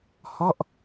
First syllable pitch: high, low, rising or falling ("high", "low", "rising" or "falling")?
falling